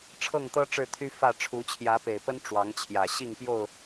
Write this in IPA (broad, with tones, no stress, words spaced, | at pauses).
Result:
ʈ͡ʂʰɤ˥˨ŋt̪ɤ˦ ʈ͡ʂɻ̩˥˨t̪ʰy˦ fä˥˨ ʈ͡ʂʰu˨˦t͡ɕʰjä˨˦pe˨˩ɪ̯pə˦n ʈ͡ʂwɑ˨˦ŋt͡ɕʰjä˨˩ ɕi˥˨ŋpjo˥˨ʊ̯